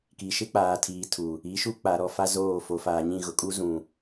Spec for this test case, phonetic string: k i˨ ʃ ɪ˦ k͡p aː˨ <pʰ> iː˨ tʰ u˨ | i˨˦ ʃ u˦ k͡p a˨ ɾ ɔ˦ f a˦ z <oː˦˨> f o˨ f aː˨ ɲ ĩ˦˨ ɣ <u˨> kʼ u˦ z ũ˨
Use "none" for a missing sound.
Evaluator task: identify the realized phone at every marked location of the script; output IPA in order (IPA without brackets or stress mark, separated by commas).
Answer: tʰ, oː˦˨, ʊ˨